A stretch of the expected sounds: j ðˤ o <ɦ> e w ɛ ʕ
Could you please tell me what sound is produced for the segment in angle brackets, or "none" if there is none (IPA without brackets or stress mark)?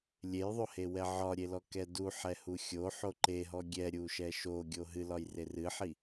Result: h